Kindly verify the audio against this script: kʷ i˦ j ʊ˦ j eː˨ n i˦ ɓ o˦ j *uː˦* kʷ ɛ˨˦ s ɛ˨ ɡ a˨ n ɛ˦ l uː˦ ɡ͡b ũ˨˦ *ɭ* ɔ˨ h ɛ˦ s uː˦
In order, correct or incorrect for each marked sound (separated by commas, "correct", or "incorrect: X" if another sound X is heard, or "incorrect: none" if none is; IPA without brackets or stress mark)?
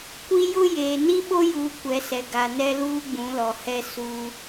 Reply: incorrect: uː˨, incorrect: l